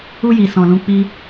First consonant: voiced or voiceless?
voiced